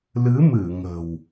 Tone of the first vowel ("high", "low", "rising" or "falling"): rising